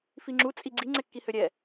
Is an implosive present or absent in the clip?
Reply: absent